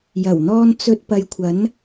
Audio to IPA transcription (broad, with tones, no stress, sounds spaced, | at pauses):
j ɐ˨˩ w n̪ ɔː˧ n t͡s ɵ˧ t̚ p ɐ˨˧ j kʷʰ ɐ˨˥ n